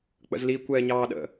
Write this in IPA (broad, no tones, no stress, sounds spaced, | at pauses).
k͡p ə̰ z l i kʷ ɛː ɲ ɑː ɗ ə̰